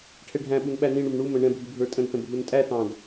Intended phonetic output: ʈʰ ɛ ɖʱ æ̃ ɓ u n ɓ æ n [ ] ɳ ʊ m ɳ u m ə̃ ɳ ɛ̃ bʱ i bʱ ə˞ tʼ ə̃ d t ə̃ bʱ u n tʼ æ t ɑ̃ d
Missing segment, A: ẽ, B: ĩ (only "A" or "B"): B